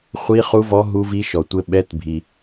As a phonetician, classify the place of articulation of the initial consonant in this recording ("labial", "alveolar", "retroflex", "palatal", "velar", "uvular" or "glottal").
uvular